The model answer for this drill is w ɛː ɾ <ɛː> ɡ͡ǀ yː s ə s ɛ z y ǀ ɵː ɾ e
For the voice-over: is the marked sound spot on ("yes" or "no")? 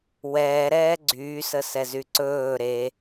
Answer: yes